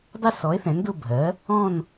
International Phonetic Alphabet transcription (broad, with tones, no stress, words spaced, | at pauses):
dˤɪ˦˨sɔ˩˥e̯ θɛ̃˩˥ndʊ˦˨bʱɜ˩˥ | ɔ̃˦˨n